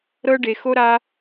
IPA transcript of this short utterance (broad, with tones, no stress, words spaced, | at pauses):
ɾɤ˦ɖe˧ xo˦ɾa˦